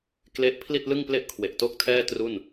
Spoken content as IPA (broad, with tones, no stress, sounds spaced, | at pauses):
k l e˦˥ ʔ pʰ l i˥˩ t̚ l ɯ˥˩ ŋ p l e˥˩ ʔ kʰ w e˨˩ ʔ t o˥˩ k̚ tʰ ɛː˥˩ t r u˥˩ n